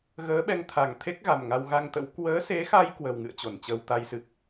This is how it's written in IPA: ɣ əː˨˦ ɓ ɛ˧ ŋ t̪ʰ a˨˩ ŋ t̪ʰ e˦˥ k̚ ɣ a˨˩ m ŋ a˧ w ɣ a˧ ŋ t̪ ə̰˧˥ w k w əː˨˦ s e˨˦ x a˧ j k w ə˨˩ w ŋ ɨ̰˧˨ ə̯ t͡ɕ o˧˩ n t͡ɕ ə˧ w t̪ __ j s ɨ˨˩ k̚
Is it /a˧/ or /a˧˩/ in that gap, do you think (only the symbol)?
a˧